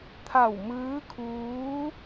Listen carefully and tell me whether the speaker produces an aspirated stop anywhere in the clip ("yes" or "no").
yes